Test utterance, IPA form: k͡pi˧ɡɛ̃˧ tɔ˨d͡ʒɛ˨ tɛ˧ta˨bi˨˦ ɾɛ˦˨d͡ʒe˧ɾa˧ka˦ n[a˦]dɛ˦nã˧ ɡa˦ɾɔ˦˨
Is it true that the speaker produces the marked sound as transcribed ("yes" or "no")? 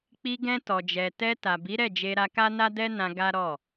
yes